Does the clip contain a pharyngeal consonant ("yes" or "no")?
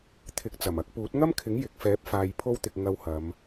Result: no